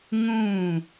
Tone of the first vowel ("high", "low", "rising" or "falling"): falling